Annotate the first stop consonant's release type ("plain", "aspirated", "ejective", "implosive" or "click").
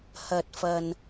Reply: plain